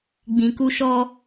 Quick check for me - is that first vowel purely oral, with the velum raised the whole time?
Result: no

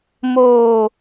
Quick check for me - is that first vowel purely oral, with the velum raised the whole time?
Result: yes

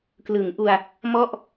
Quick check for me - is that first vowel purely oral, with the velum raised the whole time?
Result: yes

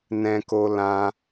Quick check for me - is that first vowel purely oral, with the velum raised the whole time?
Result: no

